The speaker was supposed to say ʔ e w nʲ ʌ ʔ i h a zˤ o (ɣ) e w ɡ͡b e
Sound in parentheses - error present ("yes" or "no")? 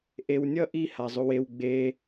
yes